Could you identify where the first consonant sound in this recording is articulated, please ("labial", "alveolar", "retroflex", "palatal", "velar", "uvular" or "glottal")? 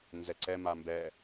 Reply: alveolar